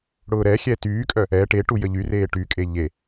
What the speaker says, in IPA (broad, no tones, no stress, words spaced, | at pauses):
ɽʊːɾɛxʲɛ tyːkʼœ | ɛ ʈeʈu jəʎyreː ʈykʼe ʎe